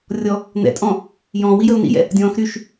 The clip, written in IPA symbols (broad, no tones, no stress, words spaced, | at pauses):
rʲɔ | n̪ɛ̰tʼɔ̃ | jɔ̃ːwijəʊ̯ nḭjɛ̰ | dʲɔ̃ːx ɾyʃ